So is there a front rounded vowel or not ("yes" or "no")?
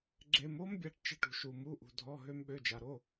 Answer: yes